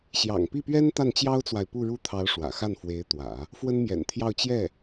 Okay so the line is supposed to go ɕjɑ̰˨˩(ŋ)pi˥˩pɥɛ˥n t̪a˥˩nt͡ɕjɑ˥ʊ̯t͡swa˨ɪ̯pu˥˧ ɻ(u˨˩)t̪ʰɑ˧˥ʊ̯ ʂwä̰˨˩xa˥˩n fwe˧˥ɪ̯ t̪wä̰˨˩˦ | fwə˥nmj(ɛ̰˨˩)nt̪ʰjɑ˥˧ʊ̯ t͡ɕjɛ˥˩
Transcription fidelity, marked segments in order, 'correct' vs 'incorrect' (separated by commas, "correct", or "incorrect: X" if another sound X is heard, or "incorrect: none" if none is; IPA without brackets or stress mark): correct, incorrect: u˥˩, correct